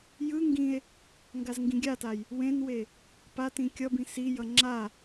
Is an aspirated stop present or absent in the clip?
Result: absent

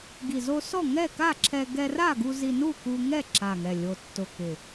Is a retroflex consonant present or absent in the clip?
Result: absent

